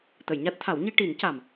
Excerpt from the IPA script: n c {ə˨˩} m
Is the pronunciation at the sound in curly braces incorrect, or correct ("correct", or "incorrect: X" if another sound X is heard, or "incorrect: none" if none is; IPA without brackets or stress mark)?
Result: incorrect: a˨˩